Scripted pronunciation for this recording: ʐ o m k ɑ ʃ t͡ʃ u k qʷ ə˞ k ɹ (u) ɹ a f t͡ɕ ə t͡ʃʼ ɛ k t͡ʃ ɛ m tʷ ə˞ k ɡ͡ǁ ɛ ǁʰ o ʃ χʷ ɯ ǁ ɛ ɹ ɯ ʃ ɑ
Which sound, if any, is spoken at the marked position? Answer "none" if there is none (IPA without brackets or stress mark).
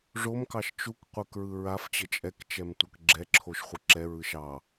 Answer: ɯ